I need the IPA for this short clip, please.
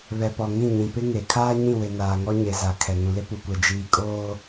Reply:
β ɛ˨ p ɔ˨ ŋ ĩ˦˨ ɲ ĩ˨ p ɪ˦ ŋ e˨ kʰ aː˦ ɲ ĩ˦˨ w ɪ˨ n aː˨ ŋ ɔ˦ ɲ e˨ z a˨ kʰ ɛ˨ ŋ ũ˨ l ɪ˦ p u˨ kʷ ɛ˨ d͡ʒ iː˨ kʼ oː˦

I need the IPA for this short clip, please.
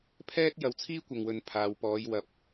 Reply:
pʰ ɛː˥ t̚ j ɐ˨˧ w t͡sʰ iː˥ kʷ ɐ˨ ŋ w ɵ˨ n pʰ aː˨ w p ɔː˨˧ j w ɐ˧ p̚

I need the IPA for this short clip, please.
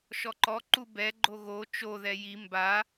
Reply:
ʃ ɔ ǃ ɔ ǃ u b ɛ ɡ͡ǃ o ɣ o t͡ʃ o ð ɛ j i m b a

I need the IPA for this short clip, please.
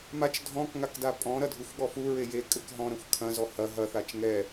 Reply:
m a t͡ʃ dʱ ɔ̃ k ŋ a k d a pʼ ɔ̃ ɾ ɐ dʱ u xʷ ɠ ɔ f u ɹ e j e kʼ ɘ k ɦ ɔ̃ ɾ ɐ̃ xʷ kʰ ɐ̃ z ɔ h ɐ ɦ ɐ θ a t͡ʃ ŋ ɛ

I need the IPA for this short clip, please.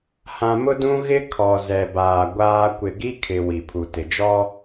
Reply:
h ã˨ m ʊ˦ d ũ˦ ɣ ɪ˦ kʰ ɔ˨ z ɛ˨ b aː˨ ɡʷ aː˦ kʷ ɪ˨ ɡ i˦ kʰ ɪ˨ w i˨ pʰ u˨ t ɪ˨ d͡ʒ ɔ˦

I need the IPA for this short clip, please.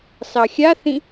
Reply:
s ɑ xʲ a θ ĩ

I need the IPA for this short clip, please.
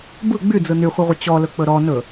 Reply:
b ɯ ɡ͡b y d͡z ɯ n y χʷ ɯ ʁʷ ə t͡ɕ ɔ l ɵ k͡p ɵ ɾ ɔ n ɵ

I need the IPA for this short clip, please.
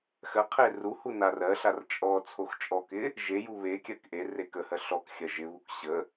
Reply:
x ɜ qʰ e r u h u n a r ɜ ɬ a r t͡ʃʼ ɔ t͡sʰ o x t͡ʃʼ ɔ k ɪ | ʒ e j u β e kʲ ɜ k ʔ e r e k ə h ɜ ɬ ɔ k xʲ ɜ ʒ ɪ β u k ɕ ə

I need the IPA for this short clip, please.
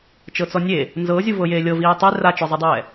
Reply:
t͡ʃ ɤ t͡s ɔ nʲ e | n z ɤ zʲ u v ɤ j eː lʲ ɤ v iː tˤ e r a t͡ʃ ɔ zˤ i dˤ ɛː

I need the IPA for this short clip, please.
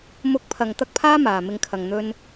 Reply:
m ʊ˨˥ k̚ pʰ ɐ˨ ŋ t̪ ɐ˥ k̚ pʰ aː˥ m aː˨ m ɪ˧ ŋ kʰ ɐ˨ ŋ n̪ ɵ˧ n

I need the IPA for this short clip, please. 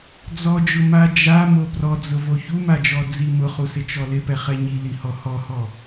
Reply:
d͡z ɔ d͡ʒ ʊ m a d͡ʒ a m o p r ɔ d͡z ʊ v o ç u m a d͡ʒ ɔ d͡z i m ʊ χ u s ɪ t͡ʃ ɔ l ɪ p ɛ χ ɛ ɲ i l i h ɔ h ɔ h ɔ

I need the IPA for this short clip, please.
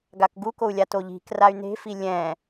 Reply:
ɡ a k ɡ u k o u̯ lʲ a t o ʎ i̤ k r a y̯ n e̤ f i lʲ ɛ̃

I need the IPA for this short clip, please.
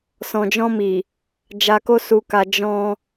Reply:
s ɔ̃˨ d͡ʒ ɔ̃˧ m i˨ | d͡ʒ a˨ k o˧ s u˨ k a˨ d͡ʒ ɔ̃˧

